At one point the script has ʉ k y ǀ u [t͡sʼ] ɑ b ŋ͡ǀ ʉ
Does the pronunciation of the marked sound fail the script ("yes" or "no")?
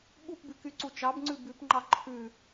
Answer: yes